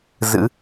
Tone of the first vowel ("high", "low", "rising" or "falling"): rising